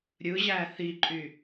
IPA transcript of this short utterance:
ɾʲɯʑæ θiǃʼy

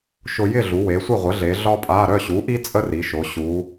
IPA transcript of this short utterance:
ʃʊ˧ jɪ˥˨ɮu˩˧ we˩˧sʷɪ˥˨ʁʷə˩˥ɮe˩˧ ɮɒ˥pʼa˧˥˧ ɾœ˥˨ɕu˩˥ʔi˥ t͡sʼə˥ri˩˧ ʃo˩˧ɕu˩˧

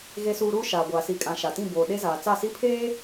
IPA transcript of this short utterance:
ɣe˨suː˨ ɾuː˦ ʃaː˨ɡʷaː˨ si˨kʼã˨ ʃa˨tĩ˦˨ boː˨ ɗe˦zaː˨ t͡sa˦˨si˦ pʰeː˦

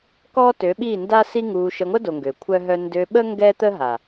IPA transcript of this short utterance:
kɔ˦tø˨˦ɓi˦˨nda˦ si˦ŋu˧ ʃə˧ŋʷə˦do˨ ŋɡø˨kʷʰœ˦ɦœ˦ ndø˧ɓə˦ ŋɡɛ˦t̪ə˦ ɦa˨

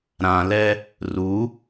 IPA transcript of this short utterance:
ɾãlɛ | ru

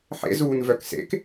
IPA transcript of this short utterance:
ħḛzuːnvœk sḛk

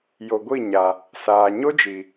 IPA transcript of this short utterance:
jo˨ɡʷi˦˨ ɲa˨ | saː˨ ɲo˦d͡ʒiː˨

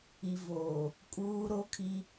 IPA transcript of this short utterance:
i˨voː˨ | kʼuː˦ɾo˦kʰi˦

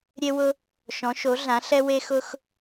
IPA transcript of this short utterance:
ɾʲe˥wʊ˥ | ʃɔ̃˩˥ʃo˩˥ɮã˩˥ ɬɛ˥we˥xʊ˥x

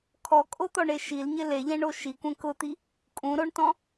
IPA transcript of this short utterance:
kʰɔkʼot̪ɔɳe ʃilɲɪ leʎɛ̃ɳo ʃikʷẽ kʊt̪i | kʼũɾoɳtɔ̃

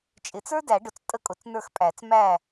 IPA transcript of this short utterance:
t͡ʃʼɪ˨˩˦t͡sə˞˥dæ˨˩˦ɖʊ˨t͡s tʼə˥˧kʼʊ˨˩˦t͡snə˞˥˩xpʼæ˨˩˦t͡s mæ˥˩

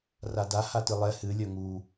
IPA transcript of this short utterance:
rada hatɨlˠɛ hɨ lʲœŋu

